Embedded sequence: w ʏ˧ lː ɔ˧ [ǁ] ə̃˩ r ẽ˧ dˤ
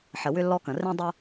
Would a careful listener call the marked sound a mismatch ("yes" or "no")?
yes